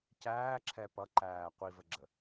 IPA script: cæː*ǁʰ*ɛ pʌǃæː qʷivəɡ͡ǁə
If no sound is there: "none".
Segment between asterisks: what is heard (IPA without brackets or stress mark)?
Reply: ǁʰ